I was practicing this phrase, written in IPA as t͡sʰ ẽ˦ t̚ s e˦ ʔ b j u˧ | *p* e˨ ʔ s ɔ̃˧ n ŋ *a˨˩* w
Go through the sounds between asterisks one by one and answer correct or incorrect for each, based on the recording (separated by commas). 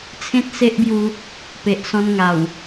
correct, correct